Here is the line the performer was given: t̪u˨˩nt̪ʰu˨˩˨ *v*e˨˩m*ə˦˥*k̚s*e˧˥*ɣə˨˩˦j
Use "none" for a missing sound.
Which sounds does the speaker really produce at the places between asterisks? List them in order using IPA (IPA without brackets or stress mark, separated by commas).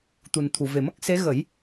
v, ə˦˥, e˧˥